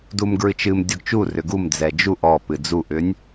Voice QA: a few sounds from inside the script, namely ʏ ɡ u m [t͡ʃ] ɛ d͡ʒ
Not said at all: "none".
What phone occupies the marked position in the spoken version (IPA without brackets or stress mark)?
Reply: d͡z